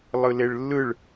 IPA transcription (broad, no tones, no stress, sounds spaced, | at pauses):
lˠ ɯ l e ɭ lː ɯ ɭ